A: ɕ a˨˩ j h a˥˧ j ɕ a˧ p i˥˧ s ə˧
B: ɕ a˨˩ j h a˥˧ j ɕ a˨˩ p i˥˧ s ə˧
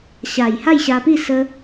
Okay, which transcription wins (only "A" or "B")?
A